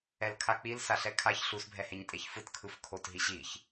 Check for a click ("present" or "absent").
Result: absent